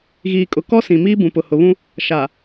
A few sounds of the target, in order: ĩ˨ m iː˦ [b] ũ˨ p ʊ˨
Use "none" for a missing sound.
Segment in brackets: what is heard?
b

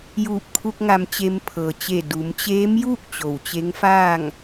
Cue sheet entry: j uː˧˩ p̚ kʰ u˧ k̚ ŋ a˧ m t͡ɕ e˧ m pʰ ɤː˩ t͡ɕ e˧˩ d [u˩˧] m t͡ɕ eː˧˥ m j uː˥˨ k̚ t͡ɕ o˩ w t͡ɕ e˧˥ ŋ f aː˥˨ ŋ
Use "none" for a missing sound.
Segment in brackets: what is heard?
u˩˧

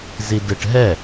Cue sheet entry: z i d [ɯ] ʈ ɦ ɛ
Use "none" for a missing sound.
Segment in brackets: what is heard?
ɯ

